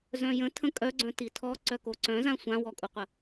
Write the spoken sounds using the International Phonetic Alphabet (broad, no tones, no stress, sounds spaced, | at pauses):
z œ̃ j ə̃ tʰ ə̃ kʼ œ ɡ͡ǀ œ̃ t i tʰ ɔ ǀ œ k o ǀ œ̃ z ã sʷ ã w ɔ kʼ u qʷ ə